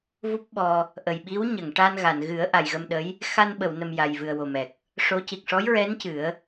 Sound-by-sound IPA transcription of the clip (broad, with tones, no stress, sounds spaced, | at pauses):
v u˦˥ p̚ ɓ ɔ˧ | ʔ ə˨˩ j ɓ i˧˥ w ɲ ə˨˩˨ ŋ ʈ a˧ n ɣ a˨˩˨ n ɣ ɨ˨˩˦ ə̯ ʔ a˨˩ j ɣ ə˧ m ɗ ə˧˥ j | x a˧ n ɓ ə˨˩˨ w n ə˨˩ m j a˨˩ j v ɨ˨˩ ə̯ w o˨˩ m ɛ˨˩ k̚ | ʂ o˧˥ c i˨˩ k̚ ʂ ɔ˧˥ j ɹ ɛ˧˥ n c ɨ˨˩˦ ə̯